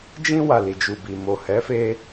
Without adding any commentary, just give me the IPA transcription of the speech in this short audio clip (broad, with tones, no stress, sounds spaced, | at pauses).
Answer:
d͡ʒ ĩ˧ w a˨ l i˨ d͡ʒ u˨ b i˨ m o˨ h ɛ˨˦ f e˧